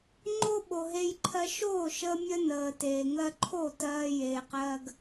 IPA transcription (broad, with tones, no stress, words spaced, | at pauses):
ŋ͡ǃo˦ɓo˨ɦe˧jǃʰɜ˧ ʃoː˦˨ʃəː˧mʲə˧ nəː˨teː˨ ŋɜ˧ǃʰo˦˨ tɜː˧jeː˨qɜː˧ɡ